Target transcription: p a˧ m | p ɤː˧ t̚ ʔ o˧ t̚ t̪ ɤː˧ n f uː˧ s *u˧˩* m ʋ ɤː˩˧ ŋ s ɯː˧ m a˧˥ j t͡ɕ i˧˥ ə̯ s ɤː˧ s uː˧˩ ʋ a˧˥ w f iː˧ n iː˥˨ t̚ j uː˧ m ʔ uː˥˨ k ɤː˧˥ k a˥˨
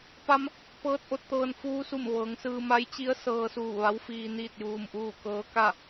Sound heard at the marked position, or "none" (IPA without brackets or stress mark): u˧˩